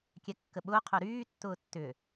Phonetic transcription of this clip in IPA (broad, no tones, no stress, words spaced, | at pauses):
kʲɛkːəɓʊː qʰœɾyː tːʊːtːʏ